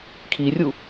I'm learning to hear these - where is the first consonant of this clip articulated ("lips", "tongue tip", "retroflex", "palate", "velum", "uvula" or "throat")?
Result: velum